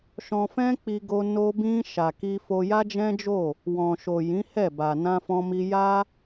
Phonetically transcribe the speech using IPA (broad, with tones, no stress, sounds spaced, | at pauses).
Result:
ʃ ɔ̃˧ f ɛ̃˦ k͡p i˧ ɡ o˧ n o˧ b ĩ˧ ʃ a˨ k i˧ f o˧ j a˦ d͡ʒ ɛ̃˦ d͡ʒ o˦˨ | w ɔ̃˨ ʃ o˨ j ĩ˨˦ h ɛ˦˨ b a˨ n ã˧ f ɔ̃˧ m i˧ j a˦